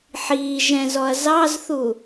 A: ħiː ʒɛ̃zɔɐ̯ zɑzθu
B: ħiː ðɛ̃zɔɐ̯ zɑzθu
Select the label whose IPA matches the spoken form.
A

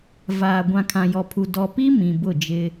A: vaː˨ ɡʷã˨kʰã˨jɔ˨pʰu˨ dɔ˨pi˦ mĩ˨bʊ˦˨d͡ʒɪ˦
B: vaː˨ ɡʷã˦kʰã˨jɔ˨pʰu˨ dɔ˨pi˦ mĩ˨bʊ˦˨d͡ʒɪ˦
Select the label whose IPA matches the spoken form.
A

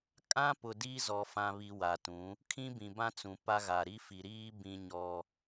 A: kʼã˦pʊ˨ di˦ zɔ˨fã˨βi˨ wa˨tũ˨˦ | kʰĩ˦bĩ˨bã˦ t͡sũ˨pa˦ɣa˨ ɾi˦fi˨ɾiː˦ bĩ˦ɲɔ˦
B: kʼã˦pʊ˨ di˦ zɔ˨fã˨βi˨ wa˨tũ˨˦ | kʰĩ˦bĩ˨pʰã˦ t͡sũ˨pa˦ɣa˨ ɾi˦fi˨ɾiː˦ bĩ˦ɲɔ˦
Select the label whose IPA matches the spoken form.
A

